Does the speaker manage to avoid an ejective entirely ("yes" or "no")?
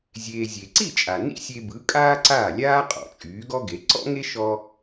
no